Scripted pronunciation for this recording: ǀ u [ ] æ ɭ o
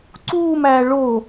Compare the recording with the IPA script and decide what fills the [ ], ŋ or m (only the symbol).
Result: m